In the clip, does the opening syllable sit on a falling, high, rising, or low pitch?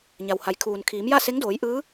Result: low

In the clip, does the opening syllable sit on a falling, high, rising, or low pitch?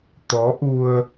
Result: rising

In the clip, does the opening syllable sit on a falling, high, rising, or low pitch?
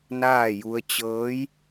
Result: falling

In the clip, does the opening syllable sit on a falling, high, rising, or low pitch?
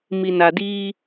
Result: low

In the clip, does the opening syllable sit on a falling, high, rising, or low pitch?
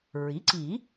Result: rising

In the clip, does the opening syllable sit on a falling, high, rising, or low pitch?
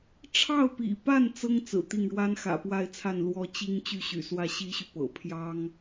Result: falling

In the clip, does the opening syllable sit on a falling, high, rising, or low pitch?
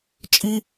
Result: high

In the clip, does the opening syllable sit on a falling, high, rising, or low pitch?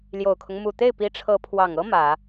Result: low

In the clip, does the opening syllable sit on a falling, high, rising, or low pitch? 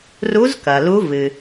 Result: rising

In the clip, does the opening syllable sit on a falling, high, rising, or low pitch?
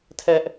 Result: high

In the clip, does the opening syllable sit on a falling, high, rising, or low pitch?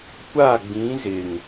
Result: falling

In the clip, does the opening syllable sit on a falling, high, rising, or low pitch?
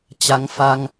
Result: rising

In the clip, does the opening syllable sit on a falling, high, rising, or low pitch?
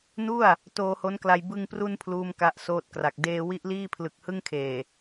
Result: falling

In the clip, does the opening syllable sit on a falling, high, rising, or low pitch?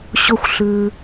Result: rising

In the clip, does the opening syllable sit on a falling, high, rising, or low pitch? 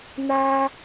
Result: low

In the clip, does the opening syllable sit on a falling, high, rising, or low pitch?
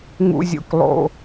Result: low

